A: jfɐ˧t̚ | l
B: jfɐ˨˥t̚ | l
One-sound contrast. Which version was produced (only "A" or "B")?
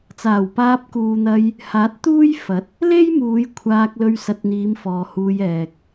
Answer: B